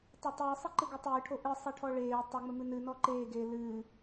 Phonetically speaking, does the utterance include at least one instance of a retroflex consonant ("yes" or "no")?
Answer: yes